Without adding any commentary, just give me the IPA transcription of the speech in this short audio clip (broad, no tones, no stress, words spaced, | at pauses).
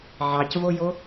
ʕɑcvojo